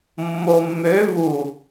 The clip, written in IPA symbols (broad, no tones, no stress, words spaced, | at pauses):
mːomːø vu